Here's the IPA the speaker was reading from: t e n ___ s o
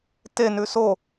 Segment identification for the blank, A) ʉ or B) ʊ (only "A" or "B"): A